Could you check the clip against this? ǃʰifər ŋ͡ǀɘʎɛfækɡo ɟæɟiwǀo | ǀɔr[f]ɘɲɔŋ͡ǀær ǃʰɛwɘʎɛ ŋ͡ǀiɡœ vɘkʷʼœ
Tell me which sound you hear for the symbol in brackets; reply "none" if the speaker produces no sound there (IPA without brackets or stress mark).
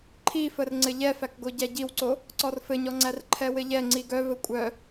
f